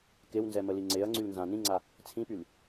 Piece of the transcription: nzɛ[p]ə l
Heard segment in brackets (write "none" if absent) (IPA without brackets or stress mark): m